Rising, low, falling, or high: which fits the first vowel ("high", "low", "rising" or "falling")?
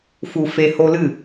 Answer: low